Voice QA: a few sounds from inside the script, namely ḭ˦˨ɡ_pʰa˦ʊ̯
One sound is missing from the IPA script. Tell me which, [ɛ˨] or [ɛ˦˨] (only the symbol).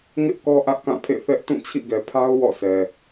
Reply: ɛ˨